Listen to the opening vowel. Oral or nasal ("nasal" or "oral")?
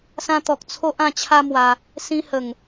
nasal